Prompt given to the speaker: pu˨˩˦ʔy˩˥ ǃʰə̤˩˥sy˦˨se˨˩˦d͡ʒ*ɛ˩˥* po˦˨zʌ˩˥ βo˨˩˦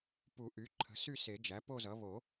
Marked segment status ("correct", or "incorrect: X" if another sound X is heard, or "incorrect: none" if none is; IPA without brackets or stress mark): incorrect: æ˩˥